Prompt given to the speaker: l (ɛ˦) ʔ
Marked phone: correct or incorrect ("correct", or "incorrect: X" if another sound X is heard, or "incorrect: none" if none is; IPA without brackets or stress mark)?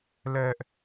correct